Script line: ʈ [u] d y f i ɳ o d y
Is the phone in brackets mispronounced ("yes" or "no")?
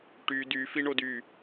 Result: yes